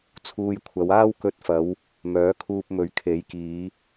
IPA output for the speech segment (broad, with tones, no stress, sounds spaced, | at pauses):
t͡sʰ uː˧ j kʷʰ ɐ˨˧ w aː˥ w k ɵ˧ t̚ f ɐ˨˧ w | m œː˨˥ kʰ uː˧ p̚ m ɵ˨˥ ɥ kʰ e˨˥ j k iː˨˧